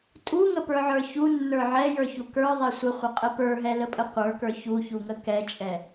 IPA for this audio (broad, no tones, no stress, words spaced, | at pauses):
tʼuŋəpə˞ʕə˞ çunːə˞ ʕɛjə˞çu kə˞ðˤɛ sʷəχʷəqʼə pə˞ɦɛləpʼə qʷə˞kə˞ çuçuŋə kɛt͡ʃʼɛ